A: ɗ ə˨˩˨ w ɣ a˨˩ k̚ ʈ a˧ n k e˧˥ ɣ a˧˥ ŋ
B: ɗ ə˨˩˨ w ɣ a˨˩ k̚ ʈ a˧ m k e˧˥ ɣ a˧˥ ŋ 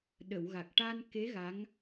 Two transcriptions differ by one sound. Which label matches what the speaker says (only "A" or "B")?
A